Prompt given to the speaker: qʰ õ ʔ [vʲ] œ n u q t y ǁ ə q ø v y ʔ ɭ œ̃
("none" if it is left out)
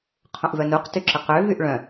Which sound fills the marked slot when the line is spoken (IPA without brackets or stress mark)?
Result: v